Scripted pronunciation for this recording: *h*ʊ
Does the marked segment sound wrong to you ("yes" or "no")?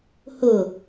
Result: no